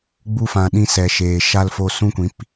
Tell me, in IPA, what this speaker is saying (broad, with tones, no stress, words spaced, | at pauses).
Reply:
ɡ͡bu˧fã˨ ɗĩ˧sɛ˨ ʃeː˨ ʃa˧lfo˧ sũ˦kʷĩ˨˦p